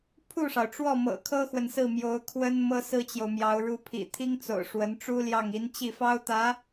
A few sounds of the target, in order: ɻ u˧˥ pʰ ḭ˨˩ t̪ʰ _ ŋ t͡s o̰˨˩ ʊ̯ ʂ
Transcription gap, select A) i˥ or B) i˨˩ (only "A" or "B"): A